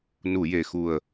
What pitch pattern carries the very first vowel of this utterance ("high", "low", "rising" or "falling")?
low